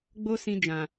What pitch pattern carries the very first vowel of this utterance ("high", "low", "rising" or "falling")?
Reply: high